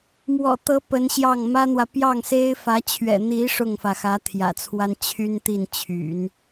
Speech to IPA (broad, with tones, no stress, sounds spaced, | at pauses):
m w ɔ̰˨˩ t̪ ɤ˧˥ p ə˧˥ n ɕ j ɑ˥˩ ŋ m ä˥ n̪ w ä˨ p j ɑ˥˩ ŋ s e˥ ɪ̯ f ä˧˥ t͡ɕʰ ɥ ɛ̰˨˩ n̪ i˧˥ ʂ ʊ˥˩ ŋ f ä˩ x ä˧˥ t̪ʰ j ä̰˨˩ t͡sʰ w a˥ n t͡ɕʰ y˥ n t̪ i˥˩ n t͡ɕʰ y̰˨˩˦ n